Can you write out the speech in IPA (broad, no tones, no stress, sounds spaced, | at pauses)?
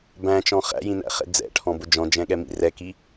b æ̃ t͡ʃ ɔ̃ χ æ̰ j ĩ n æ̰ χ ɛ̰ d͡z ɛ̰ ʈʰ ɔ̃ b ʊ d͡ʒ ɔ̃ d͡ʒ ɛ̃ ɠ ɛ m ḭ r ɛ k i